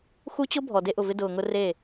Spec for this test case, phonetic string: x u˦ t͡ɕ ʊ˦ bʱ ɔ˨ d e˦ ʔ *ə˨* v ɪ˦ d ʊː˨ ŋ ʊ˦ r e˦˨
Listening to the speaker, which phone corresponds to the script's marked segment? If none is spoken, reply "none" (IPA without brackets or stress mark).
ʊ˨